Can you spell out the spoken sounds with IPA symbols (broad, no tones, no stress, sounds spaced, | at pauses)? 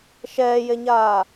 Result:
ʃ ɛː j e ɲ aː